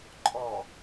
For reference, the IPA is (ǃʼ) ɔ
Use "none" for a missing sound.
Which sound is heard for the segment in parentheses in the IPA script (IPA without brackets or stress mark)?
ǃʼ